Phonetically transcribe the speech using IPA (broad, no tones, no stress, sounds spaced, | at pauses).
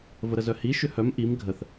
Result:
v ə ɾ ə z œ h i ʃ ʏ h œ m ʔ i m ɡʱ ə θ